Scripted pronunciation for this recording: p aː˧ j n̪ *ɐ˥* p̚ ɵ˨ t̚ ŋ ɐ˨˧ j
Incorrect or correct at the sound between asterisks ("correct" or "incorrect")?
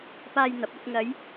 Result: incorrect